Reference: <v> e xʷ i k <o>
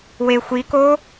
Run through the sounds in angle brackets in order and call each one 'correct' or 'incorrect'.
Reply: incorrect: w, correct

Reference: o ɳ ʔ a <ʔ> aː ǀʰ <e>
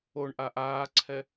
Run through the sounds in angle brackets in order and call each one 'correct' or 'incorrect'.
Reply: correct, incorrect: ɛ

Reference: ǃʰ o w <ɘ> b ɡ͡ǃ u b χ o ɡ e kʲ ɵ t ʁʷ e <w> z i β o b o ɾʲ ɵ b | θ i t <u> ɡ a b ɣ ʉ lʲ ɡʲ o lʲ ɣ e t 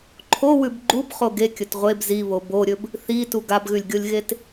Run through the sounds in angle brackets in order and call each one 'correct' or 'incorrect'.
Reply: incorrect: ʉ, incorrect: b, correct

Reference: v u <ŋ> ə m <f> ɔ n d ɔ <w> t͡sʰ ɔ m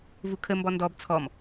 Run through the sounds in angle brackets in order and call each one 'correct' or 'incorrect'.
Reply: incorrect: kʰ, incorrect: b, incorrect: b

